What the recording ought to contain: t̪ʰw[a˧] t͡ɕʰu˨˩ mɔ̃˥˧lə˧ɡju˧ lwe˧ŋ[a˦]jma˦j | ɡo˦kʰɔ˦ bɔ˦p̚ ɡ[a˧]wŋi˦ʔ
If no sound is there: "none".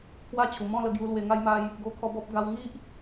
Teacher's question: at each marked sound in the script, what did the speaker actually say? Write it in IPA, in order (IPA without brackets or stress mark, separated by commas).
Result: a˦, a˦, a˧